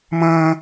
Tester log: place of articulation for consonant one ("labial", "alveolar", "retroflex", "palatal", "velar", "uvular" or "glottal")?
labial